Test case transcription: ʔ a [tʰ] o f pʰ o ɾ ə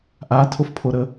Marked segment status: correct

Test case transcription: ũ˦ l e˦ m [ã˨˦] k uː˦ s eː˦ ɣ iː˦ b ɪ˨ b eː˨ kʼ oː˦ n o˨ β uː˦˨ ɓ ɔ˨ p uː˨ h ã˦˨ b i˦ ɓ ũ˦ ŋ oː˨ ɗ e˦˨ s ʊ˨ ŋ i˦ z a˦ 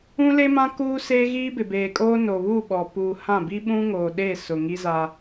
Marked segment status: incorrect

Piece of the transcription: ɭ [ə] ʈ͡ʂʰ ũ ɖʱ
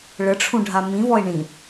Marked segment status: correct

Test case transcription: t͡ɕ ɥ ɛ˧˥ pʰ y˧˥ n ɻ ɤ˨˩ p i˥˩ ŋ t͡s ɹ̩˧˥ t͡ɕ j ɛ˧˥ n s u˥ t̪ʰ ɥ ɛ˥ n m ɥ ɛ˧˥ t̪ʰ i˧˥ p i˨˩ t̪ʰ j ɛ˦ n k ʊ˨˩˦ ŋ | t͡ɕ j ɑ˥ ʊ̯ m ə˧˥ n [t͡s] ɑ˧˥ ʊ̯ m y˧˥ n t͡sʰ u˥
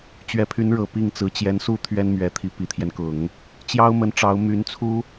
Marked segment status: incorrect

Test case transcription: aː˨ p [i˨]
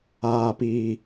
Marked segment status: correct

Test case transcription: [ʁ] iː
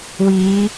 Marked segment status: incorrect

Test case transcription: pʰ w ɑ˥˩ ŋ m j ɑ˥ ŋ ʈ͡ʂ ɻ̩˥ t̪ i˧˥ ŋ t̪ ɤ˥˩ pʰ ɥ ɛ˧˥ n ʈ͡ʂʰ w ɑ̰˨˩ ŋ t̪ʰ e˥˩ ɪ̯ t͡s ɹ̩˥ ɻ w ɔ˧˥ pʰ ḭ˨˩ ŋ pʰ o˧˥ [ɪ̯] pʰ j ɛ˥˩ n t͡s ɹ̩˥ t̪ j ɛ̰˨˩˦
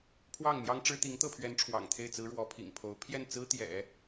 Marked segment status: incorrect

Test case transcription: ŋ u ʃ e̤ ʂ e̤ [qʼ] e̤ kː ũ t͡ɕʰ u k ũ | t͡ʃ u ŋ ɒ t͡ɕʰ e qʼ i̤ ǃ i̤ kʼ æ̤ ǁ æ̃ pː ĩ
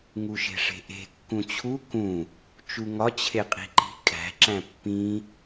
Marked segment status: incorrect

